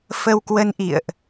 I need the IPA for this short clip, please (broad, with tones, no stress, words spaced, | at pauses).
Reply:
fə˧wkwə˧nʔḭ˧˨ə̯ʔ